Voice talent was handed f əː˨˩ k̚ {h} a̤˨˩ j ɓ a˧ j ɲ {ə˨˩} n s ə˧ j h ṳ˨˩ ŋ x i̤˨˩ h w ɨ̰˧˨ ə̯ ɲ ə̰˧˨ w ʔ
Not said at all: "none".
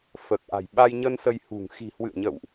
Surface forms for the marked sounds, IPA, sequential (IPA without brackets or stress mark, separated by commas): ʔ, ə˧